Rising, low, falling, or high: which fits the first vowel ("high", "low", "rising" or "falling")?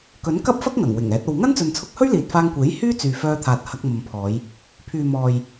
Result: rising